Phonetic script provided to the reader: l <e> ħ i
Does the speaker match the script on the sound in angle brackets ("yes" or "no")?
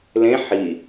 no